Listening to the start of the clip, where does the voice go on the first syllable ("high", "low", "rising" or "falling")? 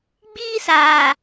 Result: high